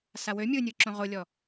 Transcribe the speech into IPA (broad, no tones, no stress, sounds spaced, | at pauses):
s a w ø mʲ ɯ nʲ ɯ ǁ õ ʁ o lʲ ɔ